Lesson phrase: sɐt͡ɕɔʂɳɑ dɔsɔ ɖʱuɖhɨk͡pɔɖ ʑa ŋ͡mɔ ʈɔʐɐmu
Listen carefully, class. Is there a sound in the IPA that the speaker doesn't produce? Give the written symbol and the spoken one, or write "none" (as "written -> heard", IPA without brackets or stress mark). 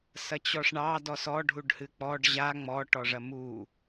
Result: none